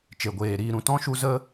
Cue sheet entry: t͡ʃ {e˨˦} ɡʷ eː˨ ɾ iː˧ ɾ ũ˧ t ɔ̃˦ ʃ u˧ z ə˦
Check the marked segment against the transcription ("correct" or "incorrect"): incorrect